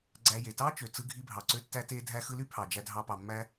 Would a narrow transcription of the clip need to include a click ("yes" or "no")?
yes